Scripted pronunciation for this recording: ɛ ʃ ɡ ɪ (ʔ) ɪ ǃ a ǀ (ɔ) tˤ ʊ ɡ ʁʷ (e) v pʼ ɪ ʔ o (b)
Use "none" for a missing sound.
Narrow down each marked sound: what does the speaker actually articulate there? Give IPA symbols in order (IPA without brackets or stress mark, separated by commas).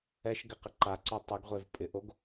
q, ɔ, e, ɡ